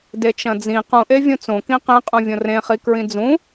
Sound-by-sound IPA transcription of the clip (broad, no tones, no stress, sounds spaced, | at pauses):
d e t͡ʃ ɐ̃ d͡z ĩ q ũ ʔ e vʲ ũ t͡s õ k ĩ q ẽ qʼ ũ vʲ õ r ẽ χ i k ɹ ĩ d͡z ũ